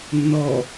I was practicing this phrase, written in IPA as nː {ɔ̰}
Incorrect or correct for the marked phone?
incorrect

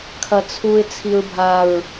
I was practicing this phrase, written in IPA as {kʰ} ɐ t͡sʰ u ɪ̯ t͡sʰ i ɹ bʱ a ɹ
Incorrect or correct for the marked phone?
correct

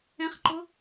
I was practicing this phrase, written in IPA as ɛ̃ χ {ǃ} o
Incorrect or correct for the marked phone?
correct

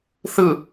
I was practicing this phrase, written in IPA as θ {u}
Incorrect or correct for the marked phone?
incorrect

